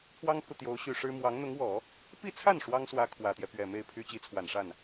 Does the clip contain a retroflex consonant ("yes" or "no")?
yes